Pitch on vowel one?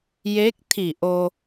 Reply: rising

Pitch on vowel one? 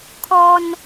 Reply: high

